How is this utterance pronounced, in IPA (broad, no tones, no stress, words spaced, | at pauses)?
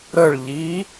ɾəɭʎi